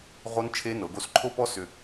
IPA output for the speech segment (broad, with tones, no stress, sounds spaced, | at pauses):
ʁ o˦˥ n t͡ʃʰ e˦˥ n ɤ˩˧ ɡ o˧ s ǃʰ o˦˥ p ɔ˦˥ s ʏ˧